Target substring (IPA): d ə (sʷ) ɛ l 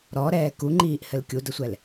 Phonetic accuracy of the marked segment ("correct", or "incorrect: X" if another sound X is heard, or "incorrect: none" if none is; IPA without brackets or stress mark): correct